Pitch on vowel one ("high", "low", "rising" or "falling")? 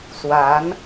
rising